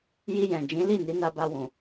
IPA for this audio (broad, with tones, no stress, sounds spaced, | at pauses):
j i˧ j ɛ̃˨ d͡ʒ ĩ˨˦ l i˦˨ n i˨˦ n a˧ b a˧ w ũ˨